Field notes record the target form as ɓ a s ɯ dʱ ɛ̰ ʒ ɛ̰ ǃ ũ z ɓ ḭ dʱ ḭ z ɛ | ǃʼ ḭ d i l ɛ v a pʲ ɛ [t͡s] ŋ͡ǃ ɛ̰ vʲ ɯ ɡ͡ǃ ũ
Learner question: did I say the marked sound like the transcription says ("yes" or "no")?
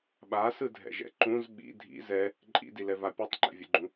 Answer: no